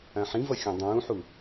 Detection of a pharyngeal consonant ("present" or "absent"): present